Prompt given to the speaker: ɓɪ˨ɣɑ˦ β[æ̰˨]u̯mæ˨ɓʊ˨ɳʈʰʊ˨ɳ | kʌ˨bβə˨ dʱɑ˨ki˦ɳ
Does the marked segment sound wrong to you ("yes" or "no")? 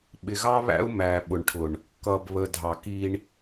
yes